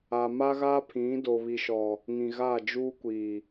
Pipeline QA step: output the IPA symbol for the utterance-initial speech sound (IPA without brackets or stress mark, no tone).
a